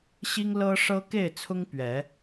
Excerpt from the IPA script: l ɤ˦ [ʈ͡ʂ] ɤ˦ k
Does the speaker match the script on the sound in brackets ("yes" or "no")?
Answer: no